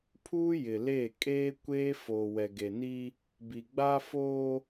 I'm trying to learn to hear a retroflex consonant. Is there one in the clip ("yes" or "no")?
no